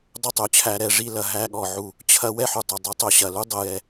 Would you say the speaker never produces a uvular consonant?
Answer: yes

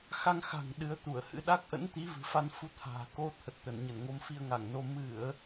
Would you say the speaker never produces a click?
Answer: yes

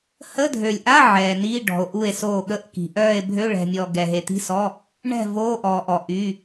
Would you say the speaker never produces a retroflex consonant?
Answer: no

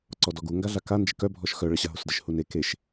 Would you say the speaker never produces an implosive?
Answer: yes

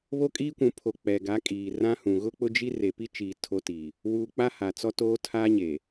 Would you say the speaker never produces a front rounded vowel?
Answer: yes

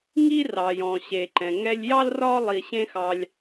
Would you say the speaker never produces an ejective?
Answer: yes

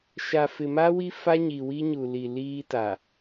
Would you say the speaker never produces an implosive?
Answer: yes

